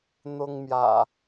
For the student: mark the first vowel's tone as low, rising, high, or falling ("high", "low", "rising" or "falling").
high